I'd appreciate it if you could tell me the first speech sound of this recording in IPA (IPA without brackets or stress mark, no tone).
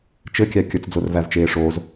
t͡ʃ